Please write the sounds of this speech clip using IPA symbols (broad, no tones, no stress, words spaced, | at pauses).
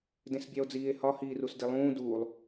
dẽsbʲæo̯d͡ziːe̯hɒ hiːrusdilˠũː duːlˠ